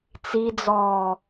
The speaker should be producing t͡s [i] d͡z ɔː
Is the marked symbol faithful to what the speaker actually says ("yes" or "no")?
yes